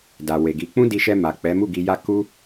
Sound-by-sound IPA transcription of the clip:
d a˨ w e˨ ɡ i˨˦ k͡p ũ˦ d i˧ ʃ ɛ˧ m a˨ k͡p ɛ˨˦ m u˦˨ ɡ i˧ j a˦ k u˦

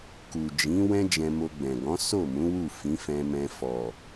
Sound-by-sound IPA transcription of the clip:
k u˨ d͡ʒ ĩ˨˦ w ɛ̃˦ d͡ʒ ɛ̃˧ m o˧ ɡ͡b ɛ̃˨ ɡ ɔ̃˨˦ s o˦˨ m ũ˨˦ w u˦˨ f ĩ˨˦ f ɛ̃˧ m ɛ̃˧ f ɔ˨

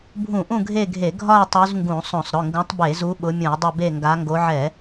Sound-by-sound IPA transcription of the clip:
bʱ ũ˧˩˧ ʔ ũ˦˨ ɡʱ e˦˨ ɡʱ e˧˩˧ ɡʱ ɒ˦˨ ɪ̯ tˤ u˨˦ z ŋ ɡ ũ˧˩˧ sˤ õ˧˩˧ sˤ ɾ ʊ˩˧˩ ŋ ɡ ũ˨˦ tˤ b e˧˩˧ z u˨˦ ɓ ʊ˨˦ mʲ ũ˧˩˧ ɪ̯ dˤ ɪ˦˨ b e˦˨ ŋ ɡ a˨˦ ŋ ɡ o˨˦ ʕ ɛ˧˩˧

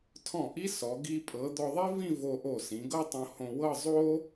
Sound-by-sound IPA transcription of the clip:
tʰ ɔ̃˧˩ ʔ i˥ s ɔ˩˧ ɡ i˧ pʼ ɤ˩˧ d̪ ɔ˧ ðˤ i˥ v ĩ˥˧ v o˧ ʔ o˧˩ s ĩ˩˧ ɡ ɤ˥ tˤ õ˧ h õ˧ w ɤ˥˧ zˤ o˥

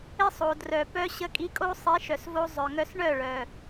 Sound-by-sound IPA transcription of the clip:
ɪ˦ sˤ o˨ d r œ˨ p œ˧ ɕ ə˧ kʼ i˧ kʼ o˦ sˤ i˨˦ ʃ œ˨ s v o˧ zˤ œ˨ ŋ œ˧ s ɳ œ˦˨ ɭ œ˨

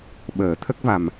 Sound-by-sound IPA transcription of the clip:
ɓ əː˨˩˦ t̪ʰ ə˦˥ k̚ v a˨˩ m

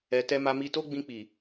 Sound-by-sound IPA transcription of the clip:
ɛ˨ t ɛ˧ m a˧ m i˧ t o˦ ɡ͡b ĩ˧ k͡p i˨

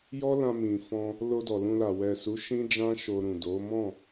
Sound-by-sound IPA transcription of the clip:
j ɔ˦ l ã˧ m ĩ˨ f ɔ̃˧ | l o˧ d ɔ˨ l ũ˧ l a˨ w ɛ˨ s u˨˦ ʃ ĩ˦ d͡ʒ ã˦ ʃ o˧ ɾ ũ˨ d o˨˦ m ɔ̃˦˨

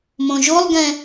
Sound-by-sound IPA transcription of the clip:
m õ ʒ o lˠ ɡ ɛ̃

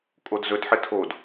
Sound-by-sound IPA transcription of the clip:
kʼ o d z ɵ d ħ ɘ tʰ o d

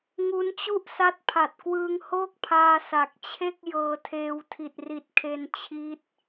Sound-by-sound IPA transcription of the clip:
ŋ u˦˥ n t͡ɕ u˥˩ ʔ s a˦˥ t̚ pʰ a˨˩ t̚ k w ɯː˧ ŋ h oː˥˩ k̚ pʰ aː˧ s a˨˩ k̚ t͡ɕʰ e˥˩ k̚ j ɤː˧ tʰ eː˧ w tʰ i˨˩ t̚ r i˨˩ t̚ kʰ e˧ n t͡ɕʰ i˦˥ t̚

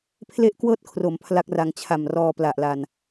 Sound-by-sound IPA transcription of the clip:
pʰ l e˥˩ ʔ k w ɤː˥˩ t̚ kʰ r o˩˦ m pʰ l a˦˥ k̚ r a˧ ŋ t͡ɕʰ a˨˩ m r ɔː˧ p l a˨˩ ʔ l a˨˩ n

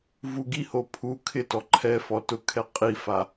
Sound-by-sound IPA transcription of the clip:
v u ɡ i h o pʰ u kʰ ɪ t ɔ ǃʰ ɛ f ɔ t ʊ kʰ ɛ qʼ i f a

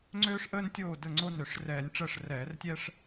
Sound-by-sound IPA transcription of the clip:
ŋ͡ǀ øː˥ ʂ ʔ əː˥ n tʲ oː˥˨ d ə˥˨ ŋ͡ǀ o˥ n ø˧˩˧ ʂ r ɛː˧˩˧ nʲ ʈ͡ʂ əː˥˨ ʂ r ɛː˧˩˧ r tʲ ɛ˥ ʂ

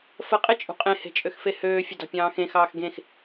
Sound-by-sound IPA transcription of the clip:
f ə qʼ e t͡ʃʼ ṳ qʼ ẽ h e̤ t͡ʃʼ ø x f e h øː fʲ ə d ɑ̤ pʲ ɑ̃ː x ẽ x ɑː x ɡ ẽ x

